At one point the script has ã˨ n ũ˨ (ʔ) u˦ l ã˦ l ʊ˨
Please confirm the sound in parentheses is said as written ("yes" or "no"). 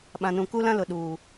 no